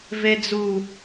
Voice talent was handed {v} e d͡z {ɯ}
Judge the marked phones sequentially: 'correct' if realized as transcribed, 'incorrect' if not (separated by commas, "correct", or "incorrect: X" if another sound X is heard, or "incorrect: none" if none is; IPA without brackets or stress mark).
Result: correct, incorrect: u